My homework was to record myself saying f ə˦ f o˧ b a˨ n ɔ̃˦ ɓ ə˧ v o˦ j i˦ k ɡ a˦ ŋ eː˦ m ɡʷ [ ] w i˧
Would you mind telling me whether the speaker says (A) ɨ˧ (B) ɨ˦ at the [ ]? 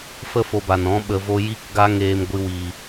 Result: B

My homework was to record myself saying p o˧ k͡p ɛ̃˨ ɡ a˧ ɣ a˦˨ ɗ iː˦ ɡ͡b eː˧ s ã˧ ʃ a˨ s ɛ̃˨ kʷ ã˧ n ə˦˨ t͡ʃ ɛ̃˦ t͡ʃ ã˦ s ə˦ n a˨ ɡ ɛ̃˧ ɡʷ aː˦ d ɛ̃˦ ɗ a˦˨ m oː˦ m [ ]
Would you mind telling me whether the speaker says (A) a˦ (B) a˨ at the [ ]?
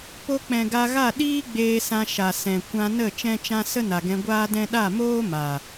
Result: B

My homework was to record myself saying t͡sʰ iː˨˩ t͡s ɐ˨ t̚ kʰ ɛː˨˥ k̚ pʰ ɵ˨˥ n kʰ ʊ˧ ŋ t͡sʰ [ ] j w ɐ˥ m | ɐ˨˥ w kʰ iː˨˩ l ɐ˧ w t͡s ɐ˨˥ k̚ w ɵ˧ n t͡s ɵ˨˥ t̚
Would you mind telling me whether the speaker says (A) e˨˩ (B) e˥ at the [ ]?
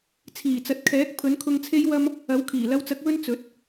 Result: B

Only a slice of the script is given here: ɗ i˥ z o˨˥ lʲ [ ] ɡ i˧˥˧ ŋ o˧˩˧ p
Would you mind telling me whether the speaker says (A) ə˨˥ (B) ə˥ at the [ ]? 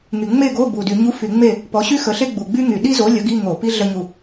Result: A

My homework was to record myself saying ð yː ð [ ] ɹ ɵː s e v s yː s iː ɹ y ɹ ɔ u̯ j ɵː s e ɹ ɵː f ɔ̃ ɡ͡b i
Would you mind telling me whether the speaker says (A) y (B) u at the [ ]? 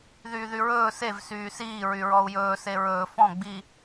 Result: A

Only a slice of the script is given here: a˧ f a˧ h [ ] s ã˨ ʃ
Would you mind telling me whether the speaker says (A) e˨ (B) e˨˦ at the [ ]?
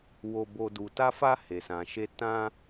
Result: A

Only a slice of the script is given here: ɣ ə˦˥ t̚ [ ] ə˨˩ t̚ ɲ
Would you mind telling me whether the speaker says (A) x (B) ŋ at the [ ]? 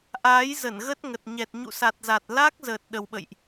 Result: B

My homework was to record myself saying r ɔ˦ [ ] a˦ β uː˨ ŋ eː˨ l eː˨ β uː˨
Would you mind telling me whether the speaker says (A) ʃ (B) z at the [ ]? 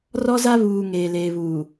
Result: B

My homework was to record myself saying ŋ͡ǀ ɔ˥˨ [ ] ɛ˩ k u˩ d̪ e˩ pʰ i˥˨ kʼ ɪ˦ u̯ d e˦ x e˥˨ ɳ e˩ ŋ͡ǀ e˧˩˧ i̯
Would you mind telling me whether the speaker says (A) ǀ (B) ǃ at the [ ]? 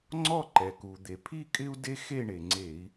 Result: B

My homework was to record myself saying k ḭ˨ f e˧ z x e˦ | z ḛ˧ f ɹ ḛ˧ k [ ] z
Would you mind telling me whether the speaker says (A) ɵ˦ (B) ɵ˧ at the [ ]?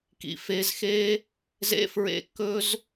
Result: A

